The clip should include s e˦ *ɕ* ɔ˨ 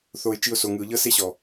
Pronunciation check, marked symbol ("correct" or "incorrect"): correct